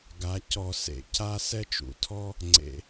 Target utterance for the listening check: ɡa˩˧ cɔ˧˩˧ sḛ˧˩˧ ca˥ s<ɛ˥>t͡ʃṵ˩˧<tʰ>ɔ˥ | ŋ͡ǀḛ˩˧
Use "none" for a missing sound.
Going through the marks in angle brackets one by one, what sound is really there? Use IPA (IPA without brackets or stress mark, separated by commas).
ɛ˥, tʰ